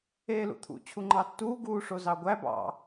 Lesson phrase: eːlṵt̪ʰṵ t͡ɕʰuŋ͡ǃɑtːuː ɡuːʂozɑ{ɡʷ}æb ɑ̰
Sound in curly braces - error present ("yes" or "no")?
no